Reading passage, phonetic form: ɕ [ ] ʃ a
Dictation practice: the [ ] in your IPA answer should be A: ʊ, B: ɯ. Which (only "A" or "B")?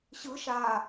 B